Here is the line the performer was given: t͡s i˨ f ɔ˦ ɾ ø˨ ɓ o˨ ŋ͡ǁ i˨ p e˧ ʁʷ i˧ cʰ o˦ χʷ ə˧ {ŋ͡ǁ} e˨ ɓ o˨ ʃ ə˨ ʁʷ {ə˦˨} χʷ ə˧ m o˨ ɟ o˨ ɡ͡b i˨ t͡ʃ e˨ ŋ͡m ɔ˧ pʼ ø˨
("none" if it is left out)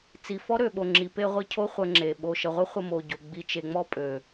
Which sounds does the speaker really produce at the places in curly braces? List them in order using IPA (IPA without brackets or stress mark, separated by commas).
ŋ͡ǁ, ə˦